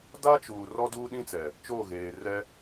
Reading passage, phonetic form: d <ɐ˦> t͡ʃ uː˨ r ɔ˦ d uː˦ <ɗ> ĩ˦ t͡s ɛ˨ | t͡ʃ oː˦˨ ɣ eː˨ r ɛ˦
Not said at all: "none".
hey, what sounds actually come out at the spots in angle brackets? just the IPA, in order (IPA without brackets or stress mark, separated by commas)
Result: a˦, ɗ